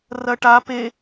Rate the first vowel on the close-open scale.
open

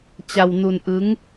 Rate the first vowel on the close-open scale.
open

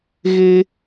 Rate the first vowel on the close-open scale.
mid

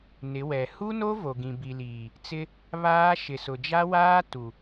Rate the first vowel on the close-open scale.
close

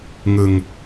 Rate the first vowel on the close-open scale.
close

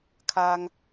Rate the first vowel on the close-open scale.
open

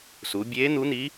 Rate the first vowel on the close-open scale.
close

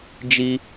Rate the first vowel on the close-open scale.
close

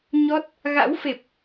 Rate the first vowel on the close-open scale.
mid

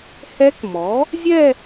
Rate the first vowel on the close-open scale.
mid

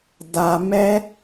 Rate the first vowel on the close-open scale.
open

